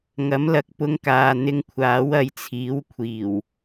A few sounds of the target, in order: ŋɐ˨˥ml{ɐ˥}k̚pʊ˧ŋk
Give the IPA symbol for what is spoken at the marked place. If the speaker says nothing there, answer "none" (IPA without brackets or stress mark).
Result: ɐ˨